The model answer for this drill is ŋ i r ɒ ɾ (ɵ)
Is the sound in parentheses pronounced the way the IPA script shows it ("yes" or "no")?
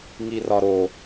no